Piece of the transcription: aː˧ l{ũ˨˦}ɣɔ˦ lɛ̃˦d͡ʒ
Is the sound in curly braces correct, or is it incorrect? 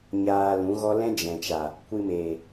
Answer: correct